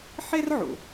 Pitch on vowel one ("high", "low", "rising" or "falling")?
high